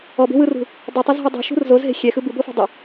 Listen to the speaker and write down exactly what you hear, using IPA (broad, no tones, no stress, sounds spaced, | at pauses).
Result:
ɔ b e̤ w ɯ r ṳ | dˤ i tˤ ɛ z ɦ u dˤ i̤ ʃ ṳ r z o z ɦ e̤ xʲ ɛ x ɯ b ɯ b o f a̤ dˤ i